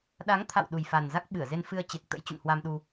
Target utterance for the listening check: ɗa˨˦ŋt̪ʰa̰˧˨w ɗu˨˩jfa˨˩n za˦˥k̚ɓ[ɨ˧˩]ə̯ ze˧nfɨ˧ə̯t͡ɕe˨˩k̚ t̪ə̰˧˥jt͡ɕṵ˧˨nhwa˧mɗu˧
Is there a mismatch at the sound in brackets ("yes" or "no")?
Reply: no